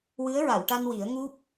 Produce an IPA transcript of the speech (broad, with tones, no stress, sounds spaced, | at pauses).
w ɨ˧˥ ə̯ ɹ a˨˩˨ w ʈ a˧ n w i˨˩˦ ə̯ ŋ u˦˥ p̚